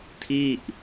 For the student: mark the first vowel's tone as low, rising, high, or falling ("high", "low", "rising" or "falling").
falling